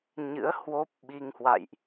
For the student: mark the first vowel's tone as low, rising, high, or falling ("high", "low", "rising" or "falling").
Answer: rising